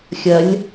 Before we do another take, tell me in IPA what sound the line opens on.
xʲ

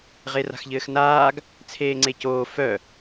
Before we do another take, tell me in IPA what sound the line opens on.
ʁ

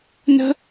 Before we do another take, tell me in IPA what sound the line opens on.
n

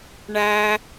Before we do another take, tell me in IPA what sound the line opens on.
ɳ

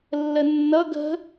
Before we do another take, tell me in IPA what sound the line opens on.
lː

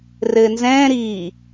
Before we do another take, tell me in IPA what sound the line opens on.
r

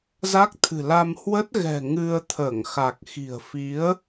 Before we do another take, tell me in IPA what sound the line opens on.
z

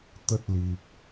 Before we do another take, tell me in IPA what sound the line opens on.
t̪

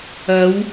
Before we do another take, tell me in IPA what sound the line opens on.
ɐ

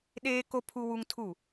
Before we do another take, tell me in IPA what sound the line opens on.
ɗ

